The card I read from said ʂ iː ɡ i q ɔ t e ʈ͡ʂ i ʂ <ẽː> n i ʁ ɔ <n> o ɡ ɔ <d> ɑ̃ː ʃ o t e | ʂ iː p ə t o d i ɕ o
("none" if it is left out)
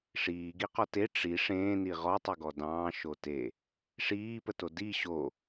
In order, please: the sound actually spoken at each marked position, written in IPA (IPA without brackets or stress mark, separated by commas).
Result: ẽː, tˤ, d